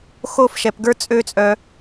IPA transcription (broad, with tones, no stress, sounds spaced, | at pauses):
x o˦˨ f ʃ ɛ˨ p ɡ ə˞˦ t͡sʼ ø˦ t͡sʼ œ˧